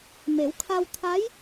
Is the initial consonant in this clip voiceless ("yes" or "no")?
no